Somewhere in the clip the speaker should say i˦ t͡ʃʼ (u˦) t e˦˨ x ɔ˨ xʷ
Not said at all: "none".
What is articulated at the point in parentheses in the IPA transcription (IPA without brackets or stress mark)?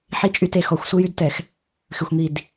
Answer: y˦